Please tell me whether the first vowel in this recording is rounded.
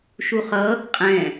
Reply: yes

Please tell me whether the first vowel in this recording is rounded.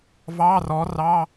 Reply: no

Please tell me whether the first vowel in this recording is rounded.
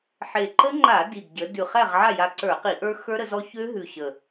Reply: no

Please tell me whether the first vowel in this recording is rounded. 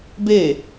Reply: no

